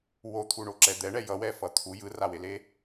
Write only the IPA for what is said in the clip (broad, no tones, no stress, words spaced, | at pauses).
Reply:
wot̪ʰuɳoǁɛ d̪ɛɳɛ jʌwɛfʌ t̪ʰu jɯrawele